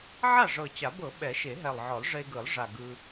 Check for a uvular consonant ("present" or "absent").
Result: absent